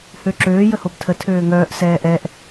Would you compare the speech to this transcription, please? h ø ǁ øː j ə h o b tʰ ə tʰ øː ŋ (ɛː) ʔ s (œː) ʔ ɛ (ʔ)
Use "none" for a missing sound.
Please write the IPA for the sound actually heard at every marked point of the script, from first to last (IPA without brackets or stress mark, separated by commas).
œː, ɛː, ʔ